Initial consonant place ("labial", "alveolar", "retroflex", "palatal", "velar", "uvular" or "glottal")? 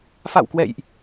labial